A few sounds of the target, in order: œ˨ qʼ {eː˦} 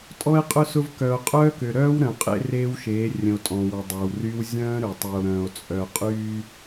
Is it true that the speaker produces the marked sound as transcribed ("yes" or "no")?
no